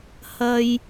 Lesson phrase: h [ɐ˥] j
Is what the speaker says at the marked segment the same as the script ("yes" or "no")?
no